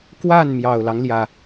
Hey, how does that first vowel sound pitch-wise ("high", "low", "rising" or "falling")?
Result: falling